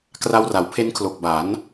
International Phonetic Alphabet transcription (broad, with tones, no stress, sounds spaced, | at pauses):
k r a˧ w r a˩˦ w pʰ e˦˥ n kʰ l o˨˩ k̚ b a˩˦ n